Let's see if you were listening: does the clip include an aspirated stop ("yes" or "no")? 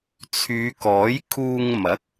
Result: yes